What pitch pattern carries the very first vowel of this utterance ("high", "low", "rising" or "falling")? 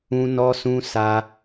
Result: high